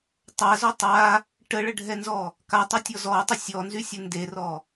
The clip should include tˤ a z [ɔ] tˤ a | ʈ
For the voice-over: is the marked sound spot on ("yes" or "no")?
yes